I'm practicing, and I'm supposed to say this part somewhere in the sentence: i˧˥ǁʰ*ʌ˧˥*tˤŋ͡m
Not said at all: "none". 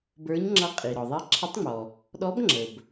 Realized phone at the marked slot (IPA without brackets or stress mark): ə˧˥